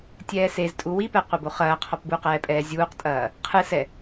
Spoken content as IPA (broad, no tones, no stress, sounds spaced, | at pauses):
tʲ ɛː s e z tʼ u w i p ɛ qʷ ɘ b o χ ɐː qʰ ɔ p b u q ɛː pʼ ɛː zʲ uː q tʼ ɐː | qʰ ɨ s ɛ